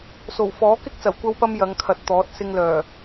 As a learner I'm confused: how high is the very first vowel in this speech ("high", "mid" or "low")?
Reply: mid